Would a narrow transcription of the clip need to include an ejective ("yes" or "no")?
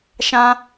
no